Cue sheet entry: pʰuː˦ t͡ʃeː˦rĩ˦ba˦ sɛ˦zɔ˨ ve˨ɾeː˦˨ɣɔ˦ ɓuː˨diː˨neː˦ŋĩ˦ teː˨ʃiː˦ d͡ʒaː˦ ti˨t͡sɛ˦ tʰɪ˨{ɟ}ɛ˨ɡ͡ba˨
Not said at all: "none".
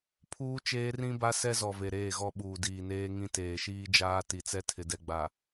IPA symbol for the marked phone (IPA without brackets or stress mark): d